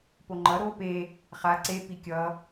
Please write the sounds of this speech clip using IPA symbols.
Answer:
p o ŋ͡ǃ ʌ ɾ o p e | χ a ǀ e p i kʲ ʌ

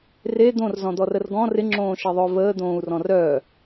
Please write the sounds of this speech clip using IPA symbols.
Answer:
r e d̪ õ r z ɔ̃ d̪ ɔ r ə r ɡ ɔ̃ r ɪ ŋ͡ǁ õː ʃ e ðˤ œ v əː d̪ õː u̯ r ɔ̃ r œː

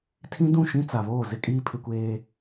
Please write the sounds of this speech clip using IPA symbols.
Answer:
tʰ ĩ˦ d ũ˦˨ ʃ ĩ˦ t͡s a˨ β oː˦˨ z ɪ˦ kʼ iː˦ pʰ ɪ˦ kʷ eː˦

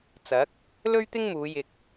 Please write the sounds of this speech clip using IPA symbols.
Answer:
t͡s ɐ˨˥ k̚ | l ɵ˥ ɥ t̪ ɪ˥ ŋ m uː˨˧ j ɪ˨ k̚

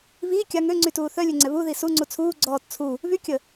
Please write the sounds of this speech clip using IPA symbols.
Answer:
β i kʲ a ŋ ø ŋ͡ǀ y t uː θ œ lʲ ø ŋ͡ǀ ɛ β u ð i s u ŋ͡ǀ u t͡sʰ uː ɡ͡ǀ ɔː t t͡sʰ u | β y kʲ ə

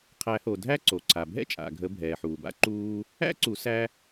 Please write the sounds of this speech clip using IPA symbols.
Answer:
qʰ æ˨˩˦ h o˩ dʱ æ˥ ǀ o˩ ǀʰ a˩ bʱ ɛ̰˥ t͡ʃʼ a̰˩ ɡʱ ə˨˩˦ bʱ ɛː˩ ħ uː˩ b a̰˥ ǃ uː˥ | æ̰˥ ǀ u˨˩˦ s æ˥

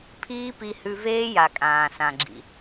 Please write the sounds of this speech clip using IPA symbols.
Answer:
pʰ iː˦ p i˧ h ʉ˧ v eː˦ j a˨ kʼ ãː˨ s ã˨ ɡ͡ǁ ḭ˨

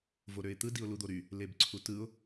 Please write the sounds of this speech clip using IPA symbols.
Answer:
v o ɾ ø ɪ̯ t̪ ɯ d i ʊ̯ l u d̪ o ɾ y | l e b ǀʰ u t ɯ ʊ̯

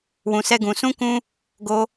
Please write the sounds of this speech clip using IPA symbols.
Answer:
w ũ˧ s ɛ˦ ɡ ũ˧ s ũ˦ k ũ˦ | ɡ o˧

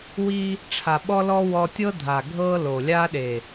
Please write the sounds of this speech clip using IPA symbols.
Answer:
w i˧ | ʈ͡ʂʰ a˨ ɓ ɔ˦ l ɔ˦ w ɔ˧ tʲ ɤ˦ dʱ a˨ ɡʱ ɤ˦ l o˨ lʲ a˦ ɗ e˨

